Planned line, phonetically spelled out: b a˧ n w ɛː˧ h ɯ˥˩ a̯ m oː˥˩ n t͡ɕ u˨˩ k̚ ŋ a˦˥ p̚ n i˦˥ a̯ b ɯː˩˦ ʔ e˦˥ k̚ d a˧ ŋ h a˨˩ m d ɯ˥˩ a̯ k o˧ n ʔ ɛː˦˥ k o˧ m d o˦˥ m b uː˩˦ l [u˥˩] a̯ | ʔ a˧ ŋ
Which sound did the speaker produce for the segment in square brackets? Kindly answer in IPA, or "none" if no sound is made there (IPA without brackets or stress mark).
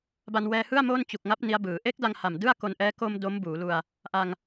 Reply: u˧